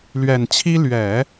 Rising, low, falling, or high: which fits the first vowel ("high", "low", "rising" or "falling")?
low